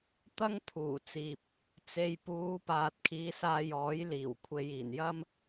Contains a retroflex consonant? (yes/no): no